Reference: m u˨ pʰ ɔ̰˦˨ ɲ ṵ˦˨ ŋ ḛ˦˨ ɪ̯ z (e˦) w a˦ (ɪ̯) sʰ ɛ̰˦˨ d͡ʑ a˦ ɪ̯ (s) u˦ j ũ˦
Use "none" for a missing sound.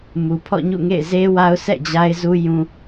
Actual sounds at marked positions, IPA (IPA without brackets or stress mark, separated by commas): e˦, ʊ̯, z